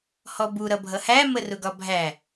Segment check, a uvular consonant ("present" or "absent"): absent